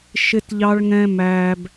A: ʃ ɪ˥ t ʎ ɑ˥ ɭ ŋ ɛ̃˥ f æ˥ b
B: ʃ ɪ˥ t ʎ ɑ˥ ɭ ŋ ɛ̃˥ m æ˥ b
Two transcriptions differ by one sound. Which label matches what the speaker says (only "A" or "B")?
B